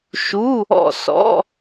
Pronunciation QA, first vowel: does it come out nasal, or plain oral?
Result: oral